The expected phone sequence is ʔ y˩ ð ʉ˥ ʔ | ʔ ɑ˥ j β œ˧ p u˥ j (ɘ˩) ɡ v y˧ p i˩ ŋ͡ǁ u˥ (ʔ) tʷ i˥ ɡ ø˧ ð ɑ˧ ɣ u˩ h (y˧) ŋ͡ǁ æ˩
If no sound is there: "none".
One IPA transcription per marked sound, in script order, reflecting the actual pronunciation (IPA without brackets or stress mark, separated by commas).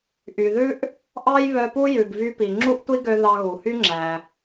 ʉ˩, ʔ, y˥